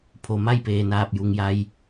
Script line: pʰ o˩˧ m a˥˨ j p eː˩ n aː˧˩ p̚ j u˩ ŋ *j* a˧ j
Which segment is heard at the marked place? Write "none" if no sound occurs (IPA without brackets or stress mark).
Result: j